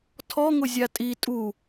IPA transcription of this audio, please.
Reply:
tʰ ɔ ŋ ʊ zʲ a tʼ i tʼ u

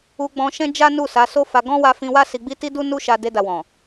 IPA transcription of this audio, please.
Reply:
u˧ ɡ͡b ɔ̃˧ ʃ ɛ̃˦ d͡ʒ a˦ n u˦˨ s a˨˦ s o˦ f a˧ ɡ ɔ̃˦ w a˧ f ĩ˧ w a˦ s i˧ ɡ͡b i˦ t i˦ d u˦ n u˦ ʃ a˧ d e˧ d a˨ w ɔ̃˨

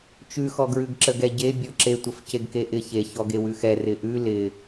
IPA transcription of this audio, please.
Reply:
t͡ʃ ʉ x ɔ ɡ ɹ ʉ ɡ ǁ ə ɡ ɛ ɟ e bʲ ɔ ǁ e tʷ ə f c e ɡ k e ʔ ɪ ç e ç ɔ ɡ e w ʉ x ɛ r ɪ ʔ ʉ l ɪ

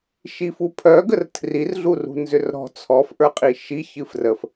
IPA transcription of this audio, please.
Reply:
ʃ i f u pʰ œ ɡ ə r tʰ r i r ɮ u r ṳ n z ʏ r ɾ ɔ̤ t͡sʰ ɔ f ʔ ə˞ qʼ i ʃ i ç ɨ f r ə f

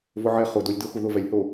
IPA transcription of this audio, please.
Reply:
v ʊ ʕ ɛ χ ʊ d o lʲ d ʊ x u ð ʊ v ɛ lʲ h o

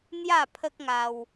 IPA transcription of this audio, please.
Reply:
n̪ j a˥˧ pʰ ə˦ k̚ ŋ a˧ w

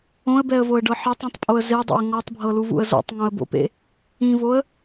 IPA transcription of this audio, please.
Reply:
õ ə̯ b ɛ ə̯ v o ə̯ ɖ ɤ ħ ɛ tˤ õ tˤ pʼ o ə̯ z e dˤ ḛ ə̯ ŋ ɔ tˤ bʱ ɤ l u v ṵ ə̯ z o̰ tˤ ŋ õ ə̯ b o̰ p ḛ | ĩ v o ə̯

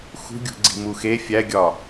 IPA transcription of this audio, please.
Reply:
x ṳ ɡʲ ṳ ɡ͡ǀ i̤ m u x e fʲ æ ɡʲ ɒ

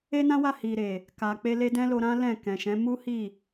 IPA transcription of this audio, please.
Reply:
e˦ n ã˦ w a˦˨ h i˨ ɾ e˨ | k a˨ k͡p e˧ l e˧ d ɛ̃˦ l o˧ ɾ ã˦ l ɛ̃˦˨ k ɛ̃˨ ʃ ɛ̃˨˦ m u˦ h i˦˨

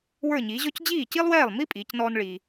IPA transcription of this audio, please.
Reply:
w ə˞˥˩ ɲ iː˩˥ ʑ ɔ˥ c d͡ʑ iː˥˩ c i˥ lˠ w ɛː˥˩ lˠ m i˥ pʼ iː˩˥ c n ɔː˥ n ɭ iː˧

